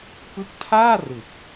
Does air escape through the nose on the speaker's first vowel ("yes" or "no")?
no